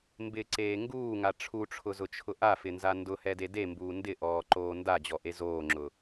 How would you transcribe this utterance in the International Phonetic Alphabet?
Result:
m b ɪ ǀ eː ŋ ɡ uː ŋ a ʈ͡ʂʰ u ʈ͡ʂʰ ʊ z ʊ t͡ʃʰ ʊ ʔ a f ɪ n z a n d ʊ h ɛ d e d e m b uː n d ɪ ʔ ɔː ǃ oː n d a d͡ʑ ɔ ʔ e z oː ŋ͡ǁ ʊ

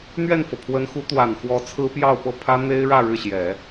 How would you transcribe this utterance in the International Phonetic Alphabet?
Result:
n̪ ɥ ɛ˥˩ n f ɤ˩ pʰ w ə˧˥ n x u˧˥ t̪ w a˨˩ n x w ɔ˧˥ t͡sʰ ɹ̩˥ p j ɑ˥˧ ʊ̯ p ɤ˥˩ pʰ ä˥ n̪ e˥ ɪ̯ ɻ ä˥˧ ɻ ɻ̩˥˩ ɕ j ɛ˨˩˦

